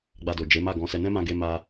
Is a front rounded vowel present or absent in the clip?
absent